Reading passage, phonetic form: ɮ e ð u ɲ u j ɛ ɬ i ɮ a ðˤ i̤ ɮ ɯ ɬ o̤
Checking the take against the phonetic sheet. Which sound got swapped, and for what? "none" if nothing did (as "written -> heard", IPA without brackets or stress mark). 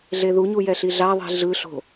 none